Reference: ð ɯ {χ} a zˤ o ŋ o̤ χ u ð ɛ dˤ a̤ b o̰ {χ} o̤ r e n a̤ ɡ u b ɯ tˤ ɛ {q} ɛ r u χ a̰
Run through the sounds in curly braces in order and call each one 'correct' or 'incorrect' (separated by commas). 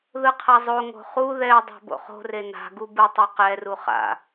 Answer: incorrect, correct, correct